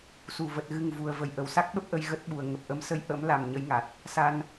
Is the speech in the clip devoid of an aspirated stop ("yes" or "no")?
yes